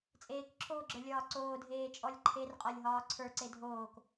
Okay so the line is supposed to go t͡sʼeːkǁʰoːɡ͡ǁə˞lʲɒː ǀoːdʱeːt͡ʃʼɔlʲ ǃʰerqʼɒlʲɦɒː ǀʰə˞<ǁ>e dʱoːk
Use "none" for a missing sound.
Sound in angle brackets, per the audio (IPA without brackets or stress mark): ǀ